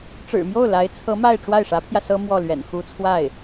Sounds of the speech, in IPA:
ʈ͡ʂ ɻ̩˨˩ m j o˥˩ ʊ̯ l a˧˥ ɪ̯ t͡sʰ ɤ˧˥ m a˥˧ ɪ̯ ʈ͡ʂ w a˥˩ ɪ̯ ʂ ä˧˥ pʰ j ä˧ s ɤ˥ m w ɔ˥˩ l ɥ ɛ̰˨˩ n x u˥ t͡sʰ w a˥˩ ɪ̯

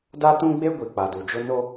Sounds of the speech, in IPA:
d a˦ t ũ˦ ɡ͡b e˦ ɡʷ i˨ k͡p a˨ d u˨ d͡ʒ ʊ˦ n o˦

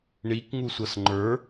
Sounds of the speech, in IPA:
ɳ i k ŋ u sʷ ʌ s ŋ͡ǃ ə˞

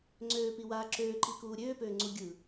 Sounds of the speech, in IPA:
ŋ͡ǀ øː p i w aː ǁ øː ǃ i k uː ɾʲ øː p øː ŋ͡ǀ u ɡʲ ɯ

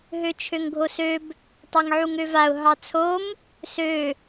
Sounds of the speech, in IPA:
ɦ ø t͡ʃʰ ø ŋ ɡʱ o s ø b | tˤ ɑ ŋ ʕ u ŋ ø v a ʊ̯ ɦ ɑ t͡sʰ o m | s ø

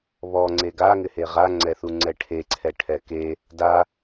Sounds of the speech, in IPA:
β ɔ ŋ͡ǀ e ɡ a ŋ ɪ h e ʁ a ŋ͡ǀ ɛ θ u ŋ͡ǀ ɛ ʈʰ e ǀʰ ɛ ʈʰ ɛ k e | d a

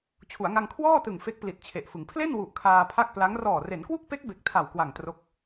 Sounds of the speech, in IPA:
t͡ɕʰ u˩˦ a̯ ŋ a˧ ŋ kʰ w ɔː˥˩ t ɯ˨˩ ŋ f e˦˥ k̚ p l i˨˩ t̚ t͡ɕʰ e˨˩ ʔ f ɯ˩˦ ŋ pʰ l e˥˩ n w u˨˩ ʔ kʰ aː˧ pʰ a˥˩ k̚ p l a˦˥ ŋ r ɔː˨˩ r e˩˦ n k w u˥˩ k̚ p e˦˥ k̚ b e˨˩ k̚ tʰ a˨˩ w k w a˨˩ ŋ t r o˦˥ k̚

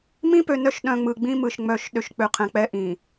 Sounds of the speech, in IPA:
m ĩ˦ p ø˨ n œ˦ ʃ ɗ œ̃˨ ŋ͡m ɯ˨ ɡ͡b ĩ˦ m ɯ˨ ʃ ŋ͡m œ˨ ʃ ɗ ø˨ ʃ k͡p ø˨ qʰ ɛ̃˨ k͡p ɛ˦ ʔ ĩ˨

